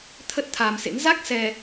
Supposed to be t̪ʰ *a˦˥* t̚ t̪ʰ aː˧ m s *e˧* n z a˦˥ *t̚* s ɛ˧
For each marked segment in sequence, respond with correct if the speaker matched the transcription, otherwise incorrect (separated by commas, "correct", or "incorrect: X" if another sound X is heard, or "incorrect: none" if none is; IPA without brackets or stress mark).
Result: incorrect: ə˦˥, incorrect: ḛ˧˥, incorrect: k̚